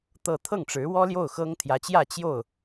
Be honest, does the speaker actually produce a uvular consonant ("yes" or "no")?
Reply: no